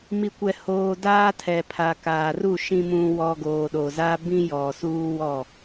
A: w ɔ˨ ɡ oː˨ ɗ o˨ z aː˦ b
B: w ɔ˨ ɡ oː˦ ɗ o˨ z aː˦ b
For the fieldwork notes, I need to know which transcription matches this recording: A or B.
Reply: A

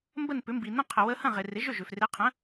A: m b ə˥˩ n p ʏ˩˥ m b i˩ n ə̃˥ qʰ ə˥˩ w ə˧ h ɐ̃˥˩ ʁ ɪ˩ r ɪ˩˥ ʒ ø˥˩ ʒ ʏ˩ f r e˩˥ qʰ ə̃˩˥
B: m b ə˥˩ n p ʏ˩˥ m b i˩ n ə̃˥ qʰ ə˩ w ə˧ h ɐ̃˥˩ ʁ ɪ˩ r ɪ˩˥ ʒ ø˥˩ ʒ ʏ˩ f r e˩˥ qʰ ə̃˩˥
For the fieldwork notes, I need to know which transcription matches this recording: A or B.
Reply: B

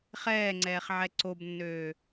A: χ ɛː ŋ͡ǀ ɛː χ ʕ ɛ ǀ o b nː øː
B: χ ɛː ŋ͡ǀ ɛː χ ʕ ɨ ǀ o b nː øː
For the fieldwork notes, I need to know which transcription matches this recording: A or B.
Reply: A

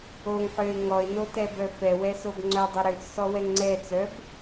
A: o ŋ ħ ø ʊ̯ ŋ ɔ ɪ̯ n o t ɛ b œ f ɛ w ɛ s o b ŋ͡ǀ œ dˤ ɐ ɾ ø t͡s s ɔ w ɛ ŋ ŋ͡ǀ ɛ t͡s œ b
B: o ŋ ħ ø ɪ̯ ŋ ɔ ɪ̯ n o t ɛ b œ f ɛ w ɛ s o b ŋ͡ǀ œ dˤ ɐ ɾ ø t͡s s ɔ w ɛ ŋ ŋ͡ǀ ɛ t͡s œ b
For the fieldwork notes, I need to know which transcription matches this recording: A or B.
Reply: B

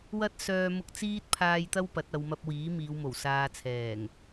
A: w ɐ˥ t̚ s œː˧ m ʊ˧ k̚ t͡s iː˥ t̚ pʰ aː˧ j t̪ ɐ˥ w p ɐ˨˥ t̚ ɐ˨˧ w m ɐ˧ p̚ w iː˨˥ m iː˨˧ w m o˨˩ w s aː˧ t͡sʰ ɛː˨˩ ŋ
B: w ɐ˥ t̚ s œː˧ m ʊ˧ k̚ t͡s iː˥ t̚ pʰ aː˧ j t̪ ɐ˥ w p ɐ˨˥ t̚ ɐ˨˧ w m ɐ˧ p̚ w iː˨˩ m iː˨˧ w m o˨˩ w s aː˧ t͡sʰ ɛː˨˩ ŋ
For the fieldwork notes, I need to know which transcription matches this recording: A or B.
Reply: A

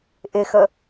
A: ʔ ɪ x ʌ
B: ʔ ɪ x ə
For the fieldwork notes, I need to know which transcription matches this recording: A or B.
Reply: B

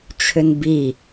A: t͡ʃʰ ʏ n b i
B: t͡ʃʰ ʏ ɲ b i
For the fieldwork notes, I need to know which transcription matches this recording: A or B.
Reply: A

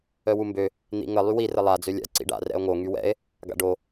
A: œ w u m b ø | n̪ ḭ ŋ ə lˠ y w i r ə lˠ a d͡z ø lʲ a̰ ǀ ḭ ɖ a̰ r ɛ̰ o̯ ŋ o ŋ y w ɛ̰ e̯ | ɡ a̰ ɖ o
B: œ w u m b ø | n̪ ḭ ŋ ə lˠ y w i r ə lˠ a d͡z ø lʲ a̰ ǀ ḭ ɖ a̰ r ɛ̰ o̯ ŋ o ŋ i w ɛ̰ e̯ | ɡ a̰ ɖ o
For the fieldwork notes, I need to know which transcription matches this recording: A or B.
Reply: A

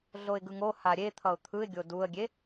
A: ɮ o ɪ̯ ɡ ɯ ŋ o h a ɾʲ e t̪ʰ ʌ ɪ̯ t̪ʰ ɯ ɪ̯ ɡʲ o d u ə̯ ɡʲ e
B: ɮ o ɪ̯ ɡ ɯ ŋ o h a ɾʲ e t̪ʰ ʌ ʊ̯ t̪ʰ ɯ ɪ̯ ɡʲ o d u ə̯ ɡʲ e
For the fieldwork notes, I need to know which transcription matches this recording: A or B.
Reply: B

